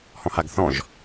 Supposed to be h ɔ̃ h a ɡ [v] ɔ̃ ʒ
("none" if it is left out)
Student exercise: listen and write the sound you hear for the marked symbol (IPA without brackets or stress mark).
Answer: θ